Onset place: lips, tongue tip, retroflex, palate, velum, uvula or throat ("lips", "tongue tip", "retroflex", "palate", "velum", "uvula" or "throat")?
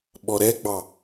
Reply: lips